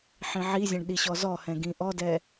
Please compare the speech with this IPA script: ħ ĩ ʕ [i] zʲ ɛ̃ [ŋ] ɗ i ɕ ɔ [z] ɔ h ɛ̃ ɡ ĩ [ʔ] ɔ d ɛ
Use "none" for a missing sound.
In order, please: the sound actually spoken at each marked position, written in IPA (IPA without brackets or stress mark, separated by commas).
i, ɳ, z, ʔ